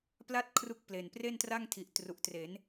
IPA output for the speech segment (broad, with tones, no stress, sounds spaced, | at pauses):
p l a˥˩ t̚ kʰ r u˦˥ k̚ p l e˨˩ n p r e˥˩ n t r a˥˩ ŋ tʰ i˨˩ ʔ t r u˨˩ ʔ t r e˩˦ n